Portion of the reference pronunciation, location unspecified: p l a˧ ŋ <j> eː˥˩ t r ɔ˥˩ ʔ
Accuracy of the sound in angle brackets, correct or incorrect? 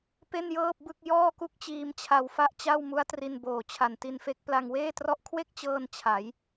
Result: incorrect